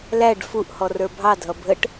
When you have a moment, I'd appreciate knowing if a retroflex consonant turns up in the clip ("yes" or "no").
yes